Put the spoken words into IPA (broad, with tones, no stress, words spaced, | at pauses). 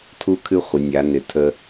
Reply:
tʰu˦kʰɨ˦ χʷɪ˩˧nʲa˩˧nɪ˩˧ tʰə˦